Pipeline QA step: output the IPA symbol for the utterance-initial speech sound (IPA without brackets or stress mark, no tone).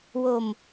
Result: w